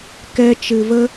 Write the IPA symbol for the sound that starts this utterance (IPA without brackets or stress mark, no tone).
k